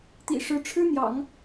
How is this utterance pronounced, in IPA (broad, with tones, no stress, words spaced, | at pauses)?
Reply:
t̪ḭ˨˩ʂɻ̩˧˥ʈ͡ʂʰɻ̩˥ n̪jɑ̰˨˩˦ŋ